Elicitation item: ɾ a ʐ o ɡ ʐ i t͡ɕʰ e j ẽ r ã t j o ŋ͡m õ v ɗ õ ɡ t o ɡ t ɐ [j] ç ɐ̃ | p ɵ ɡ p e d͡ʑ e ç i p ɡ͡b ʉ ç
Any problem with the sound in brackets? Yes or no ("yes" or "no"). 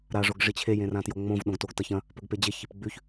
yes